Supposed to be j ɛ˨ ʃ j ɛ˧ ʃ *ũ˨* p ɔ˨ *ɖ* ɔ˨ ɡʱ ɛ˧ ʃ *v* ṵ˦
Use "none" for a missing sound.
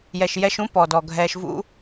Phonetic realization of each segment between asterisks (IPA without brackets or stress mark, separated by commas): ũ˨˦, d, v